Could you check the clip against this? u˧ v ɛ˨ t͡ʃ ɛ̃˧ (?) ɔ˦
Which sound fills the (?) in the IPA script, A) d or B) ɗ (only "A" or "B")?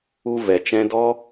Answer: A